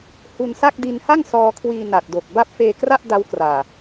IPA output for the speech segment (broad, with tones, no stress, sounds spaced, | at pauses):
h u˧ n s a˥˩ k̚ d i˧ n h a˥˩ ŋ s ɔː˧ kʰ w iː˧ n a˨˩ t̚ d o˨˩ k̚ b a˦˥ p̚ f eː˧ k r a˥˩ ʔ d a˦˥ w k r aː˨˩